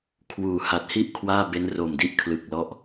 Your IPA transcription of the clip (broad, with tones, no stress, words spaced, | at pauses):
kʰwuː˩˦ha˨˩t̚hi˥˩ʔ kʰwaː˥˩be˦˥n ro˨˩mdi˥˩ʔ kʰlɯ˨˩k̚lɔ˦˥ʔ